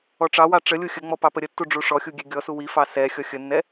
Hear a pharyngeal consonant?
no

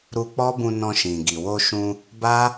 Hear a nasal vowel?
yes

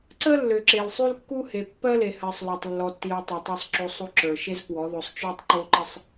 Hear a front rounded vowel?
yes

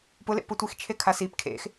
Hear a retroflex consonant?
no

